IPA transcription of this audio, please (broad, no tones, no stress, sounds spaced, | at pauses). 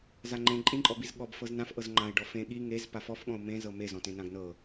z a ŋ͡ǃ ẽ ǃʼ ĩ ǃʼ ɔ b i z ɠ ɔ b f ɤ z n ã f ʔ ɤ z ŋ͡ǃ ã ɪ̯ ɖ ɔ f ẽ ɠ i ŋ e z p a f ɔ f ɠ ɔ̃ ʊ̯ m ẽ z ɤ m e z ɔ̃ t ẽ n ã ɡ n ɤ